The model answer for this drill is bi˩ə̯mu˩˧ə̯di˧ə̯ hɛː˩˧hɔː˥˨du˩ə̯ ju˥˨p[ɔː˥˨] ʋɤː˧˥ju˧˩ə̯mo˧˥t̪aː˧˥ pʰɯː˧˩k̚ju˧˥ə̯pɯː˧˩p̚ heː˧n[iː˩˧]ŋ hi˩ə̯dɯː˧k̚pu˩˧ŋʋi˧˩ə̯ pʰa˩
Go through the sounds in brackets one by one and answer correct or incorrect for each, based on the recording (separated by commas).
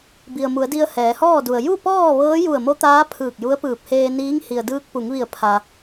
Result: correct, incorrect